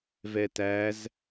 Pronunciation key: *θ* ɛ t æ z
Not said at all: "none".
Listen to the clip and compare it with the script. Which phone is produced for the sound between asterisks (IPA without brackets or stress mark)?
v